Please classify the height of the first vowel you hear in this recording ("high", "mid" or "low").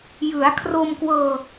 high